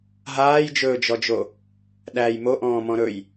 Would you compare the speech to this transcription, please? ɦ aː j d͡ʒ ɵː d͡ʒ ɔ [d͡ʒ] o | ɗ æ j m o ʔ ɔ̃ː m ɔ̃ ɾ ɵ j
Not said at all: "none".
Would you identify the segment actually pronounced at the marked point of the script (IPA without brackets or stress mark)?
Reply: d͡ʒ